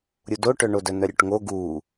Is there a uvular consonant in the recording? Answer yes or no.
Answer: no